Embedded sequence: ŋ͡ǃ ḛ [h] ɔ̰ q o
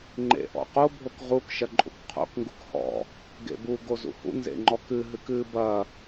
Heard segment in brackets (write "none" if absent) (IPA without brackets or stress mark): ʔ